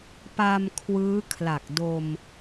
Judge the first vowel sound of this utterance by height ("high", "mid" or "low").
low